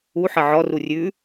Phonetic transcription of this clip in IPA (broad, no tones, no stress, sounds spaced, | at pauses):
u ħ ə ʕ ɔ r u rʲ ʉ